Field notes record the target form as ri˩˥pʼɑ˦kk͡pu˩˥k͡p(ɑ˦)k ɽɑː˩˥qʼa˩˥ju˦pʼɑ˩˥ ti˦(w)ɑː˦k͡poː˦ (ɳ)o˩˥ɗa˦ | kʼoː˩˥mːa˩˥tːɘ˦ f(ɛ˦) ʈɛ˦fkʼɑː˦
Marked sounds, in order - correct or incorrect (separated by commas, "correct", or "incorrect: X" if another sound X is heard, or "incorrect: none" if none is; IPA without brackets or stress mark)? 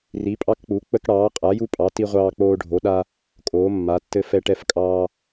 incorrect: ə˦, incorrect: ʁʷ, incorrect: ɖʱ, correct